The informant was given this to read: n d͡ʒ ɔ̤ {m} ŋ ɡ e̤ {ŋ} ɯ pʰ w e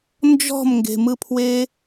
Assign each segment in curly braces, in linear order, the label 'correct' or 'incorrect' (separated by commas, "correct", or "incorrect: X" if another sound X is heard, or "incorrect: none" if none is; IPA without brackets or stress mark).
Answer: correct, incorrect: m